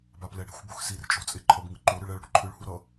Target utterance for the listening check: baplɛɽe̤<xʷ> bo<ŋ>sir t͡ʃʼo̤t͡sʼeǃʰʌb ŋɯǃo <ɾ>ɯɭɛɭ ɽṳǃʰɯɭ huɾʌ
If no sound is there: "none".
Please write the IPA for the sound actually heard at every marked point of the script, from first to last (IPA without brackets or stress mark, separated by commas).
xʷ, x, ɾ